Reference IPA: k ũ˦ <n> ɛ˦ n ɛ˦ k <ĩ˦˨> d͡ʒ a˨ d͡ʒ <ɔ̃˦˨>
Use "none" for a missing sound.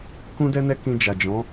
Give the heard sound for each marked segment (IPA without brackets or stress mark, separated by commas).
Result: d, ĩ˧, ɔ̃˨˦